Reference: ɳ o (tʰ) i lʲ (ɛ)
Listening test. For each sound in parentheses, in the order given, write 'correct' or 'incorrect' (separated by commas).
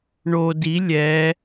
incorrect, correct